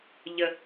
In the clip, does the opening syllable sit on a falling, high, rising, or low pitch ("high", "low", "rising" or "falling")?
low